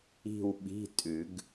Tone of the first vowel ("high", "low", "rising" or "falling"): falling